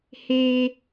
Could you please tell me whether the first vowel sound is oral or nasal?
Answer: oral